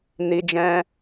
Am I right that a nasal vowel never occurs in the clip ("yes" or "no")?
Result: no